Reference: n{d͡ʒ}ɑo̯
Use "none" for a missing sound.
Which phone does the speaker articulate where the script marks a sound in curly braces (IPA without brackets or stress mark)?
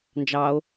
d͡ʒ